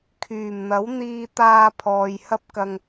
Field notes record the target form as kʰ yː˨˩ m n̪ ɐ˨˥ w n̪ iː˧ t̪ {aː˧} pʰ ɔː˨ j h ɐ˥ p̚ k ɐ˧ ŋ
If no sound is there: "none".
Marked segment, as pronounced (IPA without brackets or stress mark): aː˧